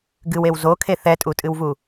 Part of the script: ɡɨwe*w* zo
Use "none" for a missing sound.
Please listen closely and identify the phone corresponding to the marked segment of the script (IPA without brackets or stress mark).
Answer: w